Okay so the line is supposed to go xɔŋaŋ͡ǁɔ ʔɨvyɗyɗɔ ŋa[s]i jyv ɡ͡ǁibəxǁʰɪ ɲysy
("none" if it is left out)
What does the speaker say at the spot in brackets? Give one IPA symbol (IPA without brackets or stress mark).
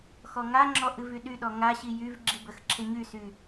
ɕ